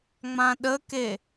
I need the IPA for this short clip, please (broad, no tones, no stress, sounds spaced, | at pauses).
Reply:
ŋ͡m ã ɗ ə k e